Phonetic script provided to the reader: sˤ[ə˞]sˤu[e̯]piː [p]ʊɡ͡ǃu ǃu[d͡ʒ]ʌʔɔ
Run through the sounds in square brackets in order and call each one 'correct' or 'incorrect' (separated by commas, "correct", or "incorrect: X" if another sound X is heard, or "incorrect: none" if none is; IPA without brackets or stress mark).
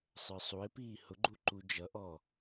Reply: correct, correct, incorrect: h, correct